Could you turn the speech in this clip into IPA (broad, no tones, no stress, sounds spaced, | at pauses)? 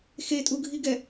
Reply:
x e tʼ u ɡʱ i ɡ ɛ